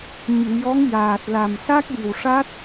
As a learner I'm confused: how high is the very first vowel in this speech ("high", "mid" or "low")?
high